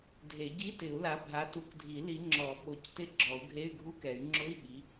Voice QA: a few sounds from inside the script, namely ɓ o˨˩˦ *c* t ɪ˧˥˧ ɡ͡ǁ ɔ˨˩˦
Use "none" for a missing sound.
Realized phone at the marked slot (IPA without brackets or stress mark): c